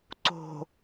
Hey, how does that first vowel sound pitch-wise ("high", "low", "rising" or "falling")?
low